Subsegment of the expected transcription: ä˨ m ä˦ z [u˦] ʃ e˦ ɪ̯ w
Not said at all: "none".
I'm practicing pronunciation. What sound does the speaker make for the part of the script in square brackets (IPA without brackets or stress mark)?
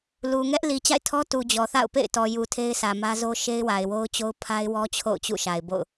o˦